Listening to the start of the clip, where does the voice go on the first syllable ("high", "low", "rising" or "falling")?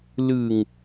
low